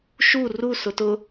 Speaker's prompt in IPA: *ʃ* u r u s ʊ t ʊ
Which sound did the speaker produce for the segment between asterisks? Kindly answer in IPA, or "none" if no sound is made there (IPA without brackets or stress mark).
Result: ʃ